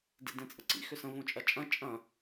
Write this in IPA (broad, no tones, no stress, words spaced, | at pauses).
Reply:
dḭdẽt͡sʼə̰ǀḭ xʏsə̃ võt͡ʃʼɐt͡ʃʼɐ̃ t͡ʃʼɐ̃